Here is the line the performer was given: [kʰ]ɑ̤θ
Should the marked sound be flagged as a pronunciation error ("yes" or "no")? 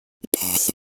yes